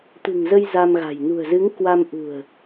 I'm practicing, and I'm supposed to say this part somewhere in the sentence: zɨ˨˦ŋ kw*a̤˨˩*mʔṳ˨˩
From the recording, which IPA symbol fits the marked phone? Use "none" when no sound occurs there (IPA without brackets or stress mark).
a˧